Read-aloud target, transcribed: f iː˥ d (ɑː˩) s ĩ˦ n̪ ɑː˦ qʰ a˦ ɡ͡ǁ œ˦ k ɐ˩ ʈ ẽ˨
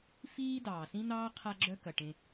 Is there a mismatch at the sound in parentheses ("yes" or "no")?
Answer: no